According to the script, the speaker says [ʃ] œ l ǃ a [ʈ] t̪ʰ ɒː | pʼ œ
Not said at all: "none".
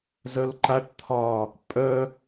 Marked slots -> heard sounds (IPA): z, ʈ

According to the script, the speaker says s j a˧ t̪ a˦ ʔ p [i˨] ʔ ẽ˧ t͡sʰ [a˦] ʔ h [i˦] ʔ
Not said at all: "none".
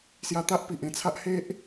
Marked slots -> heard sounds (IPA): i˨, a˦, e˦

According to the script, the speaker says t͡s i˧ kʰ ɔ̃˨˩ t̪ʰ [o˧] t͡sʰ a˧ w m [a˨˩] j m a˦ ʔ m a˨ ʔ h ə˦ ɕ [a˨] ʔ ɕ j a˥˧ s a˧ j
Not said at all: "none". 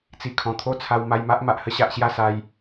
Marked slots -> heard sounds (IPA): o˥˧, a˧, a˨

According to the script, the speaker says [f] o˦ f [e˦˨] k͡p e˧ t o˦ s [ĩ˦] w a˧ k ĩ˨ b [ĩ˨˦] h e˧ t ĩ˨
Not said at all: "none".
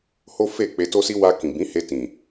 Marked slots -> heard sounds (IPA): h, e˦˨, i˦, ĩ˨˦

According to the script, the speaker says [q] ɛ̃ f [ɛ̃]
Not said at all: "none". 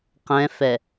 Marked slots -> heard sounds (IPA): q, ɛ

